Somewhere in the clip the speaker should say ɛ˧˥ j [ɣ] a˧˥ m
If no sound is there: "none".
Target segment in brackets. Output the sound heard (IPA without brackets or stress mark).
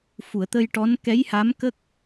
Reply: h